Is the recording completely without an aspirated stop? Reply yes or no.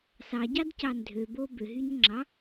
yes